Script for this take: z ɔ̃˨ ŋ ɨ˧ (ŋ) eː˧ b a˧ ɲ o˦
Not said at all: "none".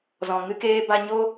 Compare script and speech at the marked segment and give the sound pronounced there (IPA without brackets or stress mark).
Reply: k